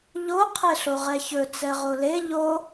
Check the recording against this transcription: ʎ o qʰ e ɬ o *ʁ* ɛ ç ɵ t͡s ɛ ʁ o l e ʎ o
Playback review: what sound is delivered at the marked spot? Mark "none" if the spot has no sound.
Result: ʁ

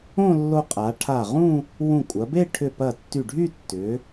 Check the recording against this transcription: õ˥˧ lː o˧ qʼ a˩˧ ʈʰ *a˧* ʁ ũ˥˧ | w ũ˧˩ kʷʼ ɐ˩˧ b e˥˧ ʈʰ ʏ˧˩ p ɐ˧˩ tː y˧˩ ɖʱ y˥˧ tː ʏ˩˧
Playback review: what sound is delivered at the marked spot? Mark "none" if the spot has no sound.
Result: a˧˩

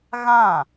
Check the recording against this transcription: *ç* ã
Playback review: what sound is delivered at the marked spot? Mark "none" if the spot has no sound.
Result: ɣ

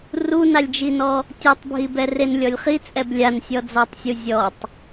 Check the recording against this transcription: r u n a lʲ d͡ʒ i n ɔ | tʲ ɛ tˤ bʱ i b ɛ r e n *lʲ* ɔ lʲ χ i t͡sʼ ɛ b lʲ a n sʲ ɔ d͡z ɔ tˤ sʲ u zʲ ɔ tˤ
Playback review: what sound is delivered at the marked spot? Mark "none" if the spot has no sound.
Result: lʲ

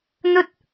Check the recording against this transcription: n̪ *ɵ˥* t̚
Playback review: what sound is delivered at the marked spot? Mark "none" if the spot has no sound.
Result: ɵ˥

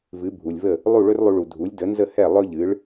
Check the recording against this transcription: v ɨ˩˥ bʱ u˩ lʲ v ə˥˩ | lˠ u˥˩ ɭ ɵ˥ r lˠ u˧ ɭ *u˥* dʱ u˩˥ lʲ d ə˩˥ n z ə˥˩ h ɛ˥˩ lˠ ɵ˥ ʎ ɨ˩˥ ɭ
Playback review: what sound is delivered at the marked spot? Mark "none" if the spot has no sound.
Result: u˩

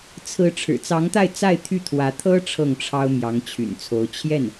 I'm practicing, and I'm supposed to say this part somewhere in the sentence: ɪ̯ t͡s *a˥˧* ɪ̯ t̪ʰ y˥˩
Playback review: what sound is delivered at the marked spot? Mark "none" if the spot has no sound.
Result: a˥˧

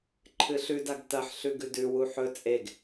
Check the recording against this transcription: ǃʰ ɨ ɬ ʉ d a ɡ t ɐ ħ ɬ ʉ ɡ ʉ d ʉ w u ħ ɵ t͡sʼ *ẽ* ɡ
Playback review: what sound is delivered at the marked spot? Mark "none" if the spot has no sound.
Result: e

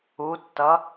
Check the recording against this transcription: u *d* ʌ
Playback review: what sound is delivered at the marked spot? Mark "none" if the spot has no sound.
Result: tː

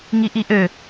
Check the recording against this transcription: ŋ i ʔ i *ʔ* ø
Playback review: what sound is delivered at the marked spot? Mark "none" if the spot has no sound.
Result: ʔ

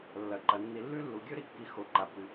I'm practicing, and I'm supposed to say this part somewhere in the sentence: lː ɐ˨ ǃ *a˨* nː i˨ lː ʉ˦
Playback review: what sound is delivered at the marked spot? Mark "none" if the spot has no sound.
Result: ɐ˨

